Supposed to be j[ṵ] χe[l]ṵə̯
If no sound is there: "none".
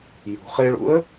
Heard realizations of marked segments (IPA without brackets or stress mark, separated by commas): ṳ, ɭ